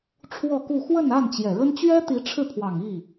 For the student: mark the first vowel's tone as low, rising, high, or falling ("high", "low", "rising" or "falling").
falling